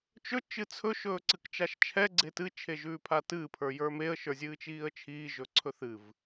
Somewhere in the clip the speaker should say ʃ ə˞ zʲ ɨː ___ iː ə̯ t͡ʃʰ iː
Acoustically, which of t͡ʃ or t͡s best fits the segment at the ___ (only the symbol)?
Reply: t͡ʃ